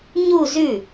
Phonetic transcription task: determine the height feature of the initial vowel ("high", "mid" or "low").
high